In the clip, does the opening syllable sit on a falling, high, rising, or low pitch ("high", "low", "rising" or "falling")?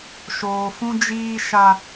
low